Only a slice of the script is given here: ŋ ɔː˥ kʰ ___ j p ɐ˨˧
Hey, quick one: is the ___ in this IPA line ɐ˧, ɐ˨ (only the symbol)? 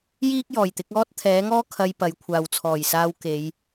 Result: ɐ˧